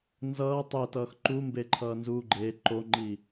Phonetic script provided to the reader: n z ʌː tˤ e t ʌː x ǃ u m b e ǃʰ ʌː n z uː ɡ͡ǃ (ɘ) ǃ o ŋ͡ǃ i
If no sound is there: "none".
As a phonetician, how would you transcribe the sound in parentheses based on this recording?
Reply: e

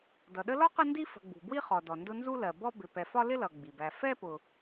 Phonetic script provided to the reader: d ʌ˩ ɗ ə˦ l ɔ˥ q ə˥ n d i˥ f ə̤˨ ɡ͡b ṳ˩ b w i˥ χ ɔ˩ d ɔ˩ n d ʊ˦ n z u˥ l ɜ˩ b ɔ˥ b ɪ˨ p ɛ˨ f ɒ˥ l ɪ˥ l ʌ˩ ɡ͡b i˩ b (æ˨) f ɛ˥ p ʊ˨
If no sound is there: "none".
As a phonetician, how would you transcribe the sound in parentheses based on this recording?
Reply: æ˨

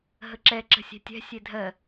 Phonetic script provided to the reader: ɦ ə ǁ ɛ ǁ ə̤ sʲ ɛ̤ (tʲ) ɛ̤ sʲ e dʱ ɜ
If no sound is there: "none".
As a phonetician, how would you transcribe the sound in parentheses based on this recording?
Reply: tʲ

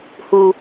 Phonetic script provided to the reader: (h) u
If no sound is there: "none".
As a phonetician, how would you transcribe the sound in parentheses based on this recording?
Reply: h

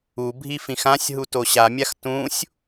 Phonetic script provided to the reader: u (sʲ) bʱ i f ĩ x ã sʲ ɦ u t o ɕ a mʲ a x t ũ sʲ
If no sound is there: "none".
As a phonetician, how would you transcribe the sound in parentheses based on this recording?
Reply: none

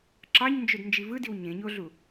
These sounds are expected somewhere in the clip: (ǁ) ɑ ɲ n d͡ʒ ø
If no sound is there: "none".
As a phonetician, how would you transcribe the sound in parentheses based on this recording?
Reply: ǁ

